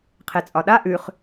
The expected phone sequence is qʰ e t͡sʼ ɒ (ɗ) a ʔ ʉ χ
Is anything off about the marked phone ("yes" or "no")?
no